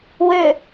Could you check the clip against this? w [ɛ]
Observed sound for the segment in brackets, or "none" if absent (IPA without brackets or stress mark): ø